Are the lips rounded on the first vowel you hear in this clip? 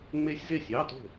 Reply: no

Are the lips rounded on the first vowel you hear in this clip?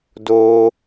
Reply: yes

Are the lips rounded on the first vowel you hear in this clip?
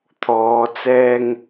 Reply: yes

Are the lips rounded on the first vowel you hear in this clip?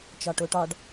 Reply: yes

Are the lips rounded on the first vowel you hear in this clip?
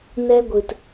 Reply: no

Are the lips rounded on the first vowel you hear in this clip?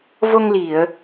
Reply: yes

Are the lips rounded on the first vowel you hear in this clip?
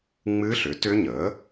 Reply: no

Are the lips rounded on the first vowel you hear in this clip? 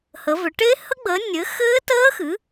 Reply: no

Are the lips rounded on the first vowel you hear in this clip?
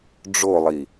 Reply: yes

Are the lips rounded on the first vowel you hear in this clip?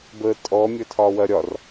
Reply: no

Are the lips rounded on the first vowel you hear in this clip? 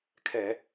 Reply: no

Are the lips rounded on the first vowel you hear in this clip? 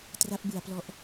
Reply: no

